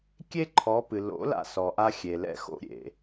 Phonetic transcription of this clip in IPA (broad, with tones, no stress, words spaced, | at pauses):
kʲe˥ǃʰɔ˩˥pɨ˩ lo̰˩˥ la̰˧sɔ˩ʔa˧ xʲe˩lɛ̰˧xo̰˧ ɾʲḛ˩